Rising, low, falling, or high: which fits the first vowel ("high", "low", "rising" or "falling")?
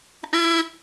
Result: high